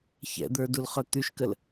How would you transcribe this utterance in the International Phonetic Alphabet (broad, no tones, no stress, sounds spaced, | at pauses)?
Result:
ç ɛ̰ d̪ ə˞ d u l χ œ t̪ y ʃ k ə l